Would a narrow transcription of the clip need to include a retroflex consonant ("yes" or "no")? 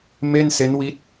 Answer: no